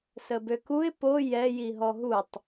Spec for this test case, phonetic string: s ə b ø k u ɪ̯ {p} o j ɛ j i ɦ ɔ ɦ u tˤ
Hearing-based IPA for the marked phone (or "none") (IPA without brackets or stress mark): p